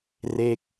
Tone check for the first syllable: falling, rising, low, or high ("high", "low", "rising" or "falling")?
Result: falling